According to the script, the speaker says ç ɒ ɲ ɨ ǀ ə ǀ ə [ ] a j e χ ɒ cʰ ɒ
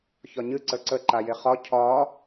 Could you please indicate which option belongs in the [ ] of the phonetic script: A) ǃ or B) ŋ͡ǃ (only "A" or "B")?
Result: A